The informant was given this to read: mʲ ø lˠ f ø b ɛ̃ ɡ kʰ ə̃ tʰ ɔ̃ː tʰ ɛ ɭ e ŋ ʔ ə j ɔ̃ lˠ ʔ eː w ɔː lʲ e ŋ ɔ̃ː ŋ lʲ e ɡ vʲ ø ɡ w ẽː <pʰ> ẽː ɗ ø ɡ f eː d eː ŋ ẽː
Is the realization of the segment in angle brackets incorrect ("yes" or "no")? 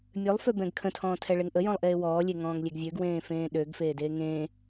yes